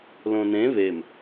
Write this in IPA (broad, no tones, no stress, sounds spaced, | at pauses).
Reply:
l õ n ẽ β e m